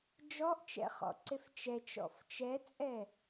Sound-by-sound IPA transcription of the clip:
d͡ʒ ɔ ʔ t͡ʃ ɛ̰ χ ɔ̰ ǀ e f t͡ʃ ɛ t͡ʃ ɔ̰ f t͡ʃ ɛ t͡sʼ ɛ

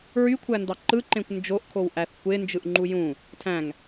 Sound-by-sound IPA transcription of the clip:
ɹ y kʷʰ æ n d ɑ ǃ ɯ ǃ ẽ kʷ n d͡ʒ o ʔ kʰ o w ʔ æ θ kʷ e n d͡ʒ ɯ ʔ ŋ͡ǃ u j ũ | tʰ æ̃ ŋ

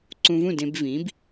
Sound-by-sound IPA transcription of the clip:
ǀ ũ˧ v ũ˥˩ d ẽ˧ b v ĩ˩˥ b

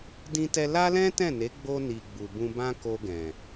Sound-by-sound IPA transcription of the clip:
d ĩ˧ t ɛ˧ l a˦ l ɛ̃˦ t ɛ̃˦˨ n e˨˦ ɡ͡b o˧ n i˨ ɡ͡b u˨ b ũ˧ b ã˦ k o˧ ɡ ɛ̃˨

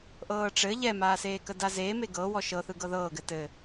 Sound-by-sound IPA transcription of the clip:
ʔ ɤː ʈ͡ʂ ɘ ʎ ɛ m aː s eː k ə d a z eː m e ɡ ɤ w ɔ ʃ ɤ θ ɯ ɡ ɤ ð ɤː ɡ ɘ t ɘ

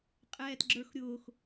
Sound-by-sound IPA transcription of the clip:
qʼ ɛː t ɡ͡ǁ ə˞ x ɾʲ ʊː x

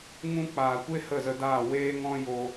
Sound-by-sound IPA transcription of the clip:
ŋ ũ˦ k͡p aː˨ kʷ e˦ h ə˦˨ z ə˧ d aː˦˨ w eː˦ ŋ ɔ̃˦ j o˧

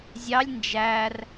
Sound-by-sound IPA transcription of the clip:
zʲ ɑ lʲ n d͡ʒ æ r

